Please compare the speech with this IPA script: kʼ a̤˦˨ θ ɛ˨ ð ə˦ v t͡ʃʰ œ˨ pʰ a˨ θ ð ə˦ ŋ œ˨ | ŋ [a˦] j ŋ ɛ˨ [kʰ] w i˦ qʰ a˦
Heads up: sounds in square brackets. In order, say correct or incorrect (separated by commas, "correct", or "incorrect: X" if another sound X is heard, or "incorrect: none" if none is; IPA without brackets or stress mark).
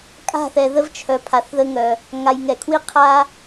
incorrect: a˨, correct